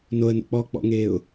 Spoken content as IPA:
n o ə̯ n o̰ k͡p ɔː k͡p ɔ̰ ŋ eː ʊ̯

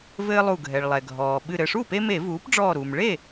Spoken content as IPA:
v ɘː˦ lˠ u˧˩ ɡʱ ɛ˩ ɭ lˠ ɛ˩ ɡʱ ɔː˩ ɓ ɨ˧˩ ɾ ɘ˧˩ ʂ u˥˩ p e˦ m e˧˩˧ v uː˩˥ p ɖ͡ʐ ɔː˧˩ ɾ u˩ m ɭ e˥˩

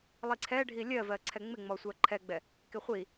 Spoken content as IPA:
lˠ i ǀʰ ɛ ɖʱ i lʲ ɜ v ɜ ǀʰ ɛ ŋ͡m ɪ ŋ͡m ɔ sʷ ɜ ǃʰ ɛ ɡ͡b ɛ | k ɪ χʷ i

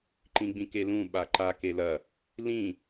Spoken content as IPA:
ǃ ĩ ɡ͡b ĩ k e l ũ ɓ a ǃ a k e l ɐ | l ĩ

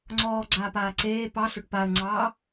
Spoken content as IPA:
ŋ͡ǀ ɔː ɡ͡ǀ aː p aː ǀ eː p ɑ ɬ ʏ ʈ p a ə̯ ŋ͡ǀ ɑː

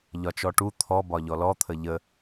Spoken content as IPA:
ʎ ɒ t͡ʃ ɔ ʈ u t̪ʰ ɔ b ɒ ʎ ɔ l ɔ t̪ʰ ə ʎ ə

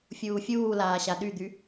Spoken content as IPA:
fʲ uː fʲ uː l aː ɕ a ɗ y d̪ y

